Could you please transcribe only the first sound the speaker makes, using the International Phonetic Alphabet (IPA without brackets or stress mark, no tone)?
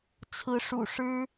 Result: t͡sʰ